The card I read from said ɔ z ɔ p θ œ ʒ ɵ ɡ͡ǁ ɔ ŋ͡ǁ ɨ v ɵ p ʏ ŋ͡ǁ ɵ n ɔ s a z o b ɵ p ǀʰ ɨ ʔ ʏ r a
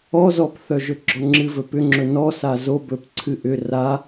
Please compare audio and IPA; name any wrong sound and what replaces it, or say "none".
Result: none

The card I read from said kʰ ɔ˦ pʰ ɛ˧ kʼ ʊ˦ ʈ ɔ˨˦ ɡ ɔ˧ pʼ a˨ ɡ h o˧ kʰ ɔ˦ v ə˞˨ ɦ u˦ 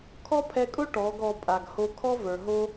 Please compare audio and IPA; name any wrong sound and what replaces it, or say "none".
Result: u˦ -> o˦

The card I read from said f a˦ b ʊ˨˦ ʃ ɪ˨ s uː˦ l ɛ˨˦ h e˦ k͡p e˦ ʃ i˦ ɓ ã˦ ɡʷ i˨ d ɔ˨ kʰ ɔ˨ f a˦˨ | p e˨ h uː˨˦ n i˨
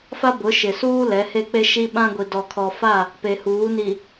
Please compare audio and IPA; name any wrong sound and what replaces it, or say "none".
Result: none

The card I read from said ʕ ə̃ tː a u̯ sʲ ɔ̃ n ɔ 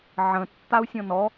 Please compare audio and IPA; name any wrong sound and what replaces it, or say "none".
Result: none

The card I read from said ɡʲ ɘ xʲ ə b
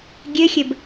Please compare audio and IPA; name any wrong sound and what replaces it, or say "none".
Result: none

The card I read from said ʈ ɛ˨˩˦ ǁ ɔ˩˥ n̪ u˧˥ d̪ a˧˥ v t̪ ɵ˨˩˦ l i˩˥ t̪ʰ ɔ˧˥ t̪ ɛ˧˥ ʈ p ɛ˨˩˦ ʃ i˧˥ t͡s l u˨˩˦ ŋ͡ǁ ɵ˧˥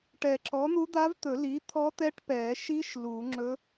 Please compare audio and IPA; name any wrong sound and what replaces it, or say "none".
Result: t͡s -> ʃ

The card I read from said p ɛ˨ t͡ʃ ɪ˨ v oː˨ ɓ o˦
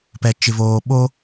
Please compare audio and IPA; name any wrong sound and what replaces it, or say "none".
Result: none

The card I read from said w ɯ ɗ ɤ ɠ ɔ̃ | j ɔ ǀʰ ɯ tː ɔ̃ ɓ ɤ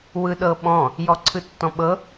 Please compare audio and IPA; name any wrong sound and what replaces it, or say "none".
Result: ɠ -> ɓ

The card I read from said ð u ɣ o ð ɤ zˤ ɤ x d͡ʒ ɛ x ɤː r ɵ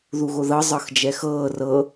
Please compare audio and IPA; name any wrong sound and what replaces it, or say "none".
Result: ɵ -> ɤ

